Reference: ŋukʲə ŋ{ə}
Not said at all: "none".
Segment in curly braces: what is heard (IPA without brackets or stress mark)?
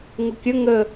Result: ə